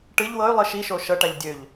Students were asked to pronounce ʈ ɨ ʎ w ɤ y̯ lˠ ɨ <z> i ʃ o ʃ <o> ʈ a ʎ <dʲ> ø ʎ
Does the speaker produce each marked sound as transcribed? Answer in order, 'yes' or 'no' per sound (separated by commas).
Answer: no, no, yes